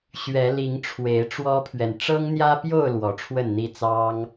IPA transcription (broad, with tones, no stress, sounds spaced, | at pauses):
ɕ ɥ ɛ˨˦ l i˨˦ ŋ ʈ͡ʂʰ w e˨˦ ɪ̯ ʈ͡ʂ w ɔ˦ pʰ ɥ ɛ˨ n ʈ͡ʂ ɤ˦ ŋ n̪ j ä˦ p j o˥˨ ʊ̯ l w ɔ˨˦ ʈ͡ʂʰ w ə˥˨ n n̪ i˥˨ t͡s ɑ˦ ŋ